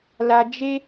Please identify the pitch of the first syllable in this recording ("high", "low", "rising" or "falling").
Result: high